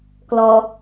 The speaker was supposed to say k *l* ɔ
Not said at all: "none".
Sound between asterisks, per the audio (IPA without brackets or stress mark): l